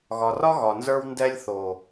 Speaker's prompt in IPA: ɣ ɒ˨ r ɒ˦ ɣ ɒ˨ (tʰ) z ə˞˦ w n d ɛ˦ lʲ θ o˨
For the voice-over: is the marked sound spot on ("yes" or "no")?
no